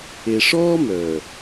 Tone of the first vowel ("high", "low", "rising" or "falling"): low